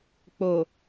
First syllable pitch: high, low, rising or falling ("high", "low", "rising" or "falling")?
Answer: low